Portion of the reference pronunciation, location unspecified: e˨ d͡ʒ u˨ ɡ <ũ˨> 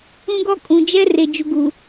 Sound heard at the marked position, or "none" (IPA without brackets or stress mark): u˨